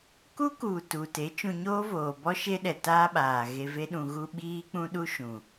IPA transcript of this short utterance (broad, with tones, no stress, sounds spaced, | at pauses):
k u˦ k u˨ t u˨ t e˨˦ t͡ʃ ũ˧ ɲ oː˦ v oː˨ b ɔ˦ ʃ e˦ ɗ ɛ˨ t aː˦ ɓ aː˨ ɣ e˧ v e˦ ɗ ũ˧ ɣ u˦ ɓ iː˦ k͡p ũ˦ ɗ u˦ ʃ ũ˨